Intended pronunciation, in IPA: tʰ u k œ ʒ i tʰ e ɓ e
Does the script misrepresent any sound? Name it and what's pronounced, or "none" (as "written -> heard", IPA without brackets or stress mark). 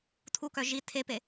ɓ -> p